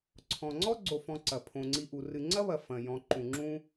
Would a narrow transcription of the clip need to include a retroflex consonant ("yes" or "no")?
no